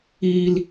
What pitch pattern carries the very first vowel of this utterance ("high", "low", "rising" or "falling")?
low